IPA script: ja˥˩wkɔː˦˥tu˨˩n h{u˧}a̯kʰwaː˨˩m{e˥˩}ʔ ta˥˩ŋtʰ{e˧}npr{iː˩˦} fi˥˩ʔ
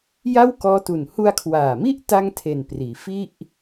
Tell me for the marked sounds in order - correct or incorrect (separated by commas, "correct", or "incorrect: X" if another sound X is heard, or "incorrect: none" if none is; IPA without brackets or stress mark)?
correct, incorrect: i˥˩, incorrect: e˨˩, correct